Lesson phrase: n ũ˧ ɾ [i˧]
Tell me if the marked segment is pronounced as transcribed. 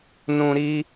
yes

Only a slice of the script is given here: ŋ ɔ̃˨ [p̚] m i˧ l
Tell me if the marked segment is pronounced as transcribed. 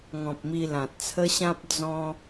yes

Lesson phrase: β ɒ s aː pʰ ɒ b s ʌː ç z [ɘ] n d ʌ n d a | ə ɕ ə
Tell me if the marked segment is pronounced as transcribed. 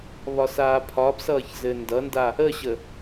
yes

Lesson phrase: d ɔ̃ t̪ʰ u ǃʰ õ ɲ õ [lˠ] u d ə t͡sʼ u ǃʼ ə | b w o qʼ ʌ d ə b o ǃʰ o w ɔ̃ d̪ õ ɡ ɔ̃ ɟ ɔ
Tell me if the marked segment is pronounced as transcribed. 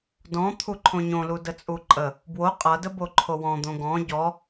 no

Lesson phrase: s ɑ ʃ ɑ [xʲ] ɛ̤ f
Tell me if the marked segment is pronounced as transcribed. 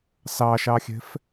yes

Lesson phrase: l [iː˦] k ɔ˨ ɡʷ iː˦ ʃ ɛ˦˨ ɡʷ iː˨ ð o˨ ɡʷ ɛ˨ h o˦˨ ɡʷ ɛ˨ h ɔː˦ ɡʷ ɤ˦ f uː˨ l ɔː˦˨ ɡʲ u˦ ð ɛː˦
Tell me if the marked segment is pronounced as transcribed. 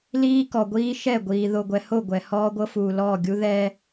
yes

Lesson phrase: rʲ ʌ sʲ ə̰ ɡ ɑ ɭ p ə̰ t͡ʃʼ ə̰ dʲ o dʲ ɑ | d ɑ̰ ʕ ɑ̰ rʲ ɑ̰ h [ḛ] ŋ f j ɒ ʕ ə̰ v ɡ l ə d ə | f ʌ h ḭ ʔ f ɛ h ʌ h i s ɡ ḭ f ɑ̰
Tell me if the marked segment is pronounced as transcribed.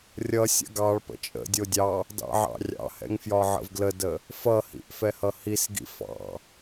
no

